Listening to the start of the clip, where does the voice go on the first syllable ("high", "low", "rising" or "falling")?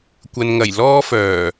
low